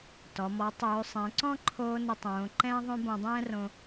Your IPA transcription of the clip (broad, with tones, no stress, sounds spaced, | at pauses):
t ɔ˩ m ɔ˩˧ tˤ øː˩˧ sˤ ɛ̃˩˧ ǀ ɔ̃˥ ǃʰ oː˧ n ə˧ tˤ õː˩˧ ǃ ɛ̃ː˧ ðˤ õ˧ b õ˧ dˤ ɛ̃ː˥ r õ˧